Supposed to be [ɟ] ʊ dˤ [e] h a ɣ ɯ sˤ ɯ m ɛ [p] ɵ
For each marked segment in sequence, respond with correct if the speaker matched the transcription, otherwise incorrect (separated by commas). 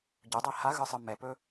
correct, incorrect, correct